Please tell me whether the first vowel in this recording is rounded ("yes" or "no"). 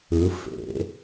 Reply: no